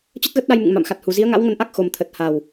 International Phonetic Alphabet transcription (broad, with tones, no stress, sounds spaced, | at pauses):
t͡ɕ ə˦˥ t̚ ɣ ə˦˥ t̚ ɗ a˧ j m ɨ̰˧˨ ŋ m a̰˧˨ m x a˨˩ t̚ h u˨˩ z i˨˦ ə̯ ŋ a̰˧˥ w ŋ ə˧ n ʔ a˦˥ k̚ x o˨˩ m t̪ʰ ə˨˩ t̚ h a˨˩ w